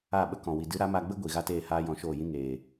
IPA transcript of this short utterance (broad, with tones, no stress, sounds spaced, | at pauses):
a˦˨ ɓ ə˦ k ɔ̃˨ w i˨ d ɨ˨˦ ɾ a˨˦ m a˧ ɡ͡b ə˦ ɡʷ i˨ ɣ a˦ t eː˦˨ h aː˦ j ɔ̃˧ ʃ oː˦˨ j ĩ˦ ŋ eː˨